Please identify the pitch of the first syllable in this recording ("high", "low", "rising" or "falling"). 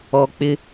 low